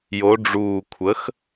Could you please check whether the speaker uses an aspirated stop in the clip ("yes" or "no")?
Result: yes